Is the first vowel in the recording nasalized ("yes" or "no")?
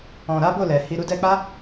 yes